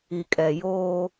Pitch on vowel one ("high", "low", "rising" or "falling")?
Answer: low